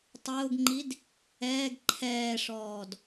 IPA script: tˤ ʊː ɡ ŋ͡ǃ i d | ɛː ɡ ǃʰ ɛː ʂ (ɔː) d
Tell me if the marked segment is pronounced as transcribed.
yes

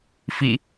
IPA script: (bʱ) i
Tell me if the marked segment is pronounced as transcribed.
no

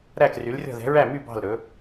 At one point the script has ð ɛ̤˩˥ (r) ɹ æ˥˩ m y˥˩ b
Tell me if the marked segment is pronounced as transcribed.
no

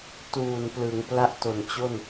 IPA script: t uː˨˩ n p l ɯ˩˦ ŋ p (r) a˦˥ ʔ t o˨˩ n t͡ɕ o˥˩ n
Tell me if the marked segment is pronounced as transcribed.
no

